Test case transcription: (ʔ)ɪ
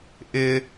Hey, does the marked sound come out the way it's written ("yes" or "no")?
yes